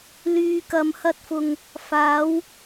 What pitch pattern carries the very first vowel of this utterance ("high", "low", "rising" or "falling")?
low